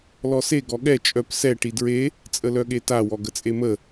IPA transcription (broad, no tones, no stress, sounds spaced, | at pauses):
l ɔ s e ɡ ɔ ɠ ɛ t͡ʃʼ œ p s ɛ ʈ i d ɹ e | t͡sʼ ə l œ ɠ e t a w ɔ ɡ ə t͡sʼ e m ə